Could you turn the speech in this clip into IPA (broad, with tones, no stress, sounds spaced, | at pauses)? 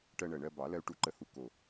ʈ ɜ˧ ɳ ɜ˨˩ ɳ ɜ˧ b ɑ˨˩˦ l ɜ˧ u̯ ʈ u˨˩˦ ǃ ə˨˩ h u˧ k o˨˩